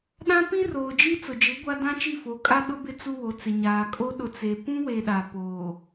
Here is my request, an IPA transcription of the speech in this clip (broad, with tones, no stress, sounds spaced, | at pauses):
ɗ ã˦ p ĩ˦ r oː˨ d͡ʒ i˦ t͡s ʊ˨ d͡ʒ ɪ˨˦ ɡʷ a˦ d ã˦ t͡ʃ i˦˨ f o˨˦ kʼ a˦ ɗ ʊ˦ b ɪ˦ t͡s u˦ w o˨˦ t͡s ɪ˨ ɲ aː˨ kʼ o˦ ɗ ʊ˨ t͡s e˨ p ũ˦ w e˨ ɗ a˨ p oː˨